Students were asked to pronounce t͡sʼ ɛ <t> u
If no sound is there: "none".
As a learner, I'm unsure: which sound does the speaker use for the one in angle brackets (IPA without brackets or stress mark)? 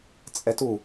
t